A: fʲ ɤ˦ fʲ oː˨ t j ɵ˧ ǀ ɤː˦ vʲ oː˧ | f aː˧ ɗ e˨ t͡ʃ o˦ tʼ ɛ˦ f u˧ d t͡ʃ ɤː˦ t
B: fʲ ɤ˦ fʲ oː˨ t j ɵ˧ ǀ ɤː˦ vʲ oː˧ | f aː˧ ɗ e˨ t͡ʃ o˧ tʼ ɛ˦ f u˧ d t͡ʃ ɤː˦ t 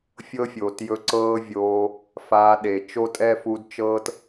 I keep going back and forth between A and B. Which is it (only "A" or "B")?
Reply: A